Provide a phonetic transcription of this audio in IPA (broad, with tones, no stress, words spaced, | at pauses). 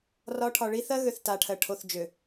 rɒ˨˦ʈʰɒ˨ ɭi˨˦θɜ˦ ɣø˦θta˨˦ʈʰɜ˨ ʈʰo˨θd͡ʒø˨